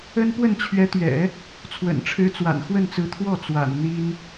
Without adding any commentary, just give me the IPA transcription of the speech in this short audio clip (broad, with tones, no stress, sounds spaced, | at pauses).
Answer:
ə˥ n p w ə˥˩ n t͡ɕʰ ɥ ɛ˧˥ t̪ ɥ ɛ̰˨˩˦ | t͡sʰ w ə̰˨˩ n ʈ͡ʂʰ ɻ̩˧˥ t͡s w a̰˨˩ n x w ə˥˩ n t͡s ɹ̩˧˥ t̪ʰ w ɔ˥˩ t͡s w a̰˨˩ n n̪ i˥ n